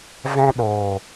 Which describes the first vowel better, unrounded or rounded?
unrounded